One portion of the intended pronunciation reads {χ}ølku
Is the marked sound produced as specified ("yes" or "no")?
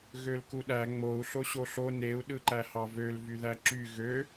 no